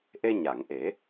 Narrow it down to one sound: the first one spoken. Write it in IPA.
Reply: ʔ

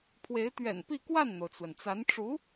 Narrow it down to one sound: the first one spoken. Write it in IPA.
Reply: pʰ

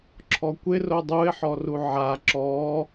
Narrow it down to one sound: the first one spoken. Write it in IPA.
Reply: ǁʰ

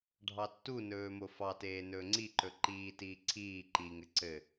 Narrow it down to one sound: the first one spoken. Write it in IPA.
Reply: ɖʱ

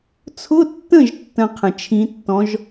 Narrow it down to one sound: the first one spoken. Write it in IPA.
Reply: t͡sʰ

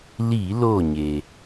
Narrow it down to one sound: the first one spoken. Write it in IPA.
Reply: l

